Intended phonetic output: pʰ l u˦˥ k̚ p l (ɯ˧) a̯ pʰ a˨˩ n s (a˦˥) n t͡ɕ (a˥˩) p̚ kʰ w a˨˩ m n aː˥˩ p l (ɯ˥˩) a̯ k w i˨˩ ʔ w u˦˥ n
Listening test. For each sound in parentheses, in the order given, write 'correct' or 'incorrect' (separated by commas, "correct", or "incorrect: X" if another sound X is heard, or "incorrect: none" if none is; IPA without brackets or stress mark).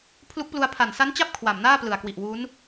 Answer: incorrect: u˧, correct, correct, incorrect: ɯ˨˩